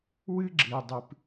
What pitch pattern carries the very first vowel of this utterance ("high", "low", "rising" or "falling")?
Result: high